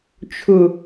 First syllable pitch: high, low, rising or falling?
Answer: low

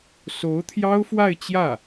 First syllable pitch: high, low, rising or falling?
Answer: rising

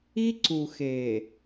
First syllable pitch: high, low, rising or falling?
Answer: high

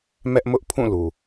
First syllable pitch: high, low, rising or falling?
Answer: high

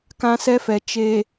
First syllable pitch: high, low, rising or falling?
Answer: high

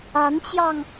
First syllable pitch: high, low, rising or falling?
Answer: rising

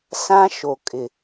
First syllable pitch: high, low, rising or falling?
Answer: high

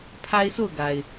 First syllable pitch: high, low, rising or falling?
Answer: high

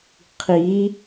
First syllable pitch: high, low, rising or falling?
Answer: rising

